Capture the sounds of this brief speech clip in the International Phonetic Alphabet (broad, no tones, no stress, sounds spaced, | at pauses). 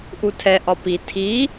ʔ u tʰ ɛ ʔ ɒ p i tʰ i